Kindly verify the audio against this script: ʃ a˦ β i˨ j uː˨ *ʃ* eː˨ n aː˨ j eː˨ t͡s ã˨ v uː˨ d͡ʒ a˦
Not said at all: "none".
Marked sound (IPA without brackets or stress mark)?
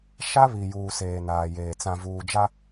s